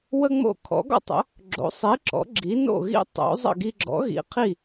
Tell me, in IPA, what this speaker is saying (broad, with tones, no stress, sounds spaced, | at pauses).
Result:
w ə˥ ŋ͡m o̰˥˩ kʰ ɔ̰˩˥ ɡ ɔ̰˥ tˤ ə̰˩˥ | ɡ͡ǁ o̰˩˥ sˤ i˩˥ ǁ ɔ̰˩˥ ɡ͡ǁ i˩˥ n o̰˥˩ ɣ ḭ˥ tˤ o̰˩˥ zˤ ə̰˥˩ ɡ i˧ ɡ͡ǁ ɔ̰˩˥ ɣ ḭ˩˥ qʰ i˥˩